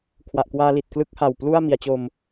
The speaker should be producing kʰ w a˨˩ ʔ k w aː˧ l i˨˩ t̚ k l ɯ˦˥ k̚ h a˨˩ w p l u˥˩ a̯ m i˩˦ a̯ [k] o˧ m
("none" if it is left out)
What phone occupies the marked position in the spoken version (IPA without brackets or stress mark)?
t͡ɕ